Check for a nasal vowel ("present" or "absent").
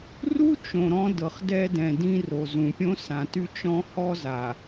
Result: present